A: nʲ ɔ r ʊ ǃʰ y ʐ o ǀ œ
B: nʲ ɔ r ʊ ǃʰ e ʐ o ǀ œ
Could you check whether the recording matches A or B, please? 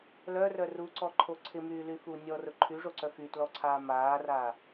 A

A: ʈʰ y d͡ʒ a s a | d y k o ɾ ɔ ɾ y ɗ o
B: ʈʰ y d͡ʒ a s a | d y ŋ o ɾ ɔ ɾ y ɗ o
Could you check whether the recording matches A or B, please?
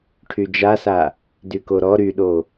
A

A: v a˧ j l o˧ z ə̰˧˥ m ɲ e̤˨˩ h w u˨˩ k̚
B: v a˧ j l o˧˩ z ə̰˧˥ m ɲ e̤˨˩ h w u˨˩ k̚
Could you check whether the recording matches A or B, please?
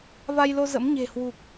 A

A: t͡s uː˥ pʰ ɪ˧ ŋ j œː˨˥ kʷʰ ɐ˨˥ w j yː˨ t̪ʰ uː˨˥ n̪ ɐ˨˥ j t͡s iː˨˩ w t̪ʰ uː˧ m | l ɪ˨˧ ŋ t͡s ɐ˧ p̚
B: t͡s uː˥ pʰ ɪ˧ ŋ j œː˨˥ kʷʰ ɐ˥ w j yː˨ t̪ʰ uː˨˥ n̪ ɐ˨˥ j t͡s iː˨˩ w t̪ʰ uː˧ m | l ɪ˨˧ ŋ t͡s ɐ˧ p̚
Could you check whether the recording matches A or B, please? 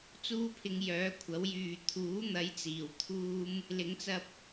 A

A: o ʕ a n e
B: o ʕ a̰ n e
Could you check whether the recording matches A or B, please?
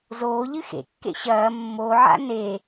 B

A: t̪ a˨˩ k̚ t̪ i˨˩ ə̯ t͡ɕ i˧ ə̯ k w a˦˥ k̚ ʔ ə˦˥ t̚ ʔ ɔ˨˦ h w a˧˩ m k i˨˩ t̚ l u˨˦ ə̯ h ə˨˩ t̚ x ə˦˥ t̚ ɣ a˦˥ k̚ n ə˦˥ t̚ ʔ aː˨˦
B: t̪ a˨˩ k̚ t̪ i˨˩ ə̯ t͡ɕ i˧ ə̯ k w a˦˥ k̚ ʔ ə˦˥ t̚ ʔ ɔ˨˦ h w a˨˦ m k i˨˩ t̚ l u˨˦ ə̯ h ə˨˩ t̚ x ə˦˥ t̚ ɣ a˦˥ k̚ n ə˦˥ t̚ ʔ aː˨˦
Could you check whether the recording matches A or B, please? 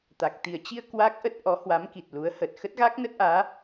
B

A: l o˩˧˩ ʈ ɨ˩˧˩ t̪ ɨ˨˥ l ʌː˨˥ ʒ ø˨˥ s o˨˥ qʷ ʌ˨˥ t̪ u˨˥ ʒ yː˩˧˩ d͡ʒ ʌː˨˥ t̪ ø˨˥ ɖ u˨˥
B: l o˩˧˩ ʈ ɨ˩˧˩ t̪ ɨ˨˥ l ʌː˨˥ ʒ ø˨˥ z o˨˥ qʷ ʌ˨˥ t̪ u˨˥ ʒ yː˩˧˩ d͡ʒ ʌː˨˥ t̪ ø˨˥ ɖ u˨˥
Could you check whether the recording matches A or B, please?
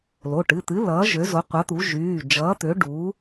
B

